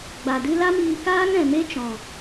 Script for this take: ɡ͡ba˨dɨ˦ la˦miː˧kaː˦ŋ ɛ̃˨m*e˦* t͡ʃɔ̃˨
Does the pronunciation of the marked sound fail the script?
no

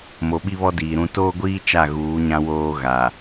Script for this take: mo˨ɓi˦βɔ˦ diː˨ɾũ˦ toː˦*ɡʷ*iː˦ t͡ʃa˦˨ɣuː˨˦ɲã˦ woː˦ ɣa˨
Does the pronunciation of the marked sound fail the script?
no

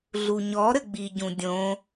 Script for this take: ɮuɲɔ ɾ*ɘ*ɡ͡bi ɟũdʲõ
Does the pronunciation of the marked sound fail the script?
no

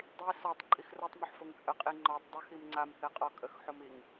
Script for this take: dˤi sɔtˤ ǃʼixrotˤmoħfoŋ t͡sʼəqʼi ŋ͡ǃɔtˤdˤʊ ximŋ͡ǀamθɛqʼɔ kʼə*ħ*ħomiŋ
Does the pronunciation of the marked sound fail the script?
yes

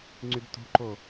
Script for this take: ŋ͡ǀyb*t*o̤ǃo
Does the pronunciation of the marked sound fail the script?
no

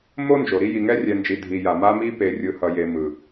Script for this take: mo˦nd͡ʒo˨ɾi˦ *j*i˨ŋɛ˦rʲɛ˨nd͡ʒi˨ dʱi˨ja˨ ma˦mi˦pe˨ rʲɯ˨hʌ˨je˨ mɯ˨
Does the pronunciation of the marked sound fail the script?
no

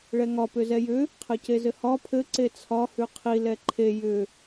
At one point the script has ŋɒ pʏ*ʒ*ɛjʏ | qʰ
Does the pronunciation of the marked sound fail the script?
yes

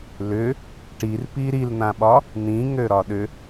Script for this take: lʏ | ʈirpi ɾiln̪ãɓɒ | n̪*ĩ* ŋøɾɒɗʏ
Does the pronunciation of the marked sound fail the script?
no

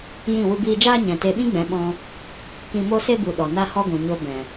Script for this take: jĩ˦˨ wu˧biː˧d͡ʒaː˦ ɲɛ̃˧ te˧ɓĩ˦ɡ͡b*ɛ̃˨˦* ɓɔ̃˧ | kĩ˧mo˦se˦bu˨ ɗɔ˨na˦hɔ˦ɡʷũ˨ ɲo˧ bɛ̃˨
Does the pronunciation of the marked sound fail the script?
no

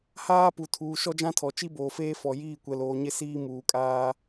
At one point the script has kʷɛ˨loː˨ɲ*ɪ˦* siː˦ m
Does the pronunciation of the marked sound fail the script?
no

